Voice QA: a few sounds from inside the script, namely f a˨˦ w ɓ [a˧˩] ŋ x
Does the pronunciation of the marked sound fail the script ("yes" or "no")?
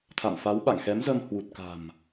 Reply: yes